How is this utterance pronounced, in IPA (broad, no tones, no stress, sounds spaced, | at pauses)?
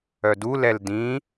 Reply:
œ d u l ɛ l d ĩ